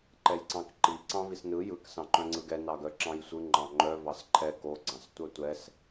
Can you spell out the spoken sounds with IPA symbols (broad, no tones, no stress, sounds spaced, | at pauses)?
ǃ ɛ j ǀ ɑ̃ k ǃ i ǀ ɑ̃ v i s n ɯ j ɯ k s ɑ̃ ǃ œ̃ ŋ͡ǀ ɯ ɡ ɛ n ɑ ɡ œ ǁ ɑ̃ j sʷ ɯ ŋ͡ǃ ɑ̃ ŋ͡ǃ œ v ɑ s ǃʰ ɛ k o ɡ͡ǀ ɑ̃ s tʷ œ tʷ ɛ s